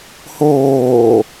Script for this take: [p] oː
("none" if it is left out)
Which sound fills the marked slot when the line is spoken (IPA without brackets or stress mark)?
h